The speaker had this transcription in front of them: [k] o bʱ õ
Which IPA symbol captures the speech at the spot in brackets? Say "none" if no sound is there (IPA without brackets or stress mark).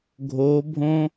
ɡʱ